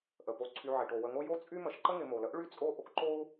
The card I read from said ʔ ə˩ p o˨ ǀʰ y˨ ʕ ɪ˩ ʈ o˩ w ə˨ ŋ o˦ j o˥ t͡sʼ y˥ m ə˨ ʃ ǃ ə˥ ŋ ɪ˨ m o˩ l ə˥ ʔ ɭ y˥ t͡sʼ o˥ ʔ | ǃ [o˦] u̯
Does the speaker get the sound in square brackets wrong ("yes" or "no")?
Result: no